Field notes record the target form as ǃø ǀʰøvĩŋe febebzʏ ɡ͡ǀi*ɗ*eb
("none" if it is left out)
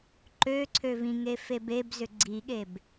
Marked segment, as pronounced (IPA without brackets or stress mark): ɠ